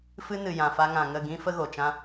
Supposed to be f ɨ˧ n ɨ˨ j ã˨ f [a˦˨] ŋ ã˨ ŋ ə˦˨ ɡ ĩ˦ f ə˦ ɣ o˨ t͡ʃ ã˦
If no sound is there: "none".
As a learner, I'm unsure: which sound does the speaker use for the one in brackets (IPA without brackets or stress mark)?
a˧